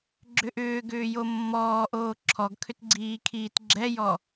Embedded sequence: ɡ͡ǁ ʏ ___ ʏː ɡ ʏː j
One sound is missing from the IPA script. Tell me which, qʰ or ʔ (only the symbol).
ʔ